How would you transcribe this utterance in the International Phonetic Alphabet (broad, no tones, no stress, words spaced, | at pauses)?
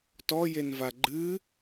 tɔjenva ɡ͡ǃɨ